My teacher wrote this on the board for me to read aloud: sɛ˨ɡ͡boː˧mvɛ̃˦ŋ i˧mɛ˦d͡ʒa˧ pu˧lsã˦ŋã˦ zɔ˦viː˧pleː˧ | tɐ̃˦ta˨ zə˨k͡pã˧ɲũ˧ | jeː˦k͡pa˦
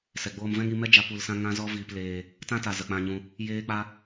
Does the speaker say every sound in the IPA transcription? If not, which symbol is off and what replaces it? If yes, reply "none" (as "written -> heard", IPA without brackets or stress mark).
ɐ̃˦ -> ã˦